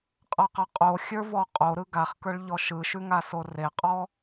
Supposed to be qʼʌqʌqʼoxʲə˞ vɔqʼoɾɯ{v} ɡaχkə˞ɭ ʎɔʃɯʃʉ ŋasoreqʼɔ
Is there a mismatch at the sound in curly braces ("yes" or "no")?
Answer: yes